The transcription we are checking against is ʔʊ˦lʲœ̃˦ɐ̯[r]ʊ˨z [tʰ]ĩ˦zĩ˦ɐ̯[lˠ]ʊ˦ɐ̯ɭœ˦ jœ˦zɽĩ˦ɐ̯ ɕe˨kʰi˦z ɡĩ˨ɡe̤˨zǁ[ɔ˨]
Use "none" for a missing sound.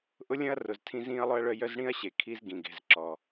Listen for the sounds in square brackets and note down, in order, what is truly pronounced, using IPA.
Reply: r, tʰ, lˠ, ɔ˨

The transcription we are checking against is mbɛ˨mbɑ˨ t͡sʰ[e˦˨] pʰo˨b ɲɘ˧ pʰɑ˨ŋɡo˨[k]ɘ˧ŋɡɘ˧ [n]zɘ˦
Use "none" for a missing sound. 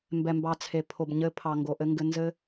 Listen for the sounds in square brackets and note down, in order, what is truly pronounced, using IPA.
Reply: e˨, ʔ, n

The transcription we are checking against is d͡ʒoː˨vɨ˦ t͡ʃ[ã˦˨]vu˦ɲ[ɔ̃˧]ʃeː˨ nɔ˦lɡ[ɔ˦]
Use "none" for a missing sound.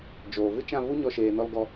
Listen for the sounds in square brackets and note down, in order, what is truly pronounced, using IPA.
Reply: ã˦˨, ɔ˧, ɔ˦

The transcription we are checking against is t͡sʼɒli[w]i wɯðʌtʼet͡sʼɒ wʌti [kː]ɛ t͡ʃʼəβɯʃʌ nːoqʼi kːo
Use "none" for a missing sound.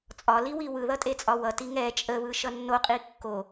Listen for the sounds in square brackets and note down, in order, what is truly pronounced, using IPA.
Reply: w, ŋ

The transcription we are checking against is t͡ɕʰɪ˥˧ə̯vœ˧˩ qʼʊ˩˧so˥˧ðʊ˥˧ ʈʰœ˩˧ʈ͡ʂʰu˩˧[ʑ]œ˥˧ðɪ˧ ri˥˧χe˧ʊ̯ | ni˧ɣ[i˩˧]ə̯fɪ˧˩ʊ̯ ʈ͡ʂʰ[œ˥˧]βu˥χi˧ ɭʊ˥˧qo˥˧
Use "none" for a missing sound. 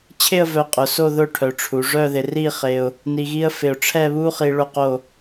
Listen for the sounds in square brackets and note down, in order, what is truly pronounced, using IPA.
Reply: ʐ, i˥, ɛ˥˧

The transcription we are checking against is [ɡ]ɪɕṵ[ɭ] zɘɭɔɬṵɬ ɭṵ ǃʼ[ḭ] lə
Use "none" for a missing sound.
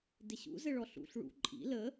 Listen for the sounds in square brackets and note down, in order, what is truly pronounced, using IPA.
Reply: d, none, ḭ

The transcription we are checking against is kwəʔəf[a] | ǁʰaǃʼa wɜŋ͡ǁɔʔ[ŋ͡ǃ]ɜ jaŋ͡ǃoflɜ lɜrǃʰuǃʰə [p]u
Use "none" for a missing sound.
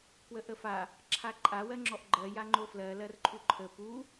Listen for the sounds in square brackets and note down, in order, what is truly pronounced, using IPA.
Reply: a, ɡ͡ǃ, p

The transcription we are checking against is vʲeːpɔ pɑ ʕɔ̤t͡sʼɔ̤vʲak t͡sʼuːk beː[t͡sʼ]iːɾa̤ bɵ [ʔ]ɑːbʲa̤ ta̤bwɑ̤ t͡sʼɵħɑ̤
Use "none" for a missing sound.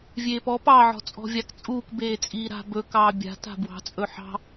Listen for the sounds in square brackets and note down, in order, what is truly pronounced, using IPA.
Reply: t͡sʼ, k

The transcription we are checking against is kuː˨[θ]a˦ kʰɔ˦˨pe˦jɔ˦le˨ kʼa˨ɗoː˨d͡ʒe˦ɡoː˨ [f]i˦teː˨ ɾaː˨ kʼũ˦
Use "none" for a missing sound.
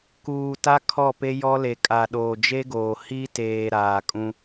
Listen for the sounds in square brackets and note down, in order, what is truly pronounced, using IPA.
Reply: t, h

